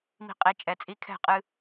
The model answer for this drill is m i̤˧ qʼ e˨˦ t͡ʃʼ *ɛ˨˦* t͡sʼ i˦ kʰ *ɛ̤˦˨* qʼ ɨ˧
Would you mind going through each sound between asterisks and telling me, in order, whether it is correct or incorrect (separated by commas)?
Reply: correct, correct